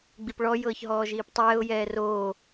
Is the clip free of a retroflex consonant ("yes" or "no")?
no